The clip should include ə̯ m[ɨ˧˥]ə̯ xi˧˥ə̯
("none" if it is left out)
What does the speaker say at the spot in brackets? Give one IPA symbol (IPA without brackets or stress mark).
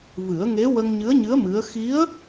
ɨ˧˥